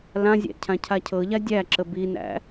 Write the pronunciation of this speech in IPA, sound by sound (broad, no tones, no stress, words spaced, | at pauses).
lãzʲæ̰ cʰãcʰacʰɤʎa dʲæǁə binæ̰